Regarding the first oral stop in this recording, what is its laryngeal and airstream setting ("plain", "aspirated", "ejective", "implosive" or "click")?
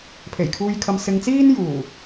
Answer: aspirated